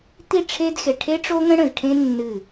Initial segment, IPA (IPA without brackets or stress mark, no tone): t̪